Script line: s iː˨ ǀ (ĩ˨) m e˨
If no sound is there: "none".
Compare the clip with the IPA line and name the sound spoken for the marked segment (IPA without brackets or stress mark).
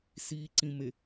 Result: ĩ˨